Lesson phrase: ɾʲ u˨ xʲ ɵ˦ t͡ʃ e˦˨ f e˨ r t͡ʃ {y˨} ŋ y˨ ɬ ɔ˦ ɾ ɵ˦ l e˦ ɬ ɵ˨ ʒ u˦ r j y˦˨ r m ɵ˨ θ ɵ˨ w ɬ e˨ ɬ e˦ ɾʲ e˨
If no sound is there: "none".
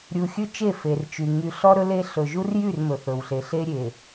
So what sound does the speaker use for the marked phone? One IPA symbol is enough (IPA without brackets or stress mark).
y˨